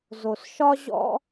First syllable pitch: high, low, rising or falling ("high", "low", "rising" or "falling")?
low